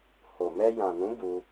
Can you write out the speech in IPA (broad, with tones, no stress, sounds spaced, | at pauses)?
h o˨ m ɛ˧ j ã˨ n ũ˨˦ b u˧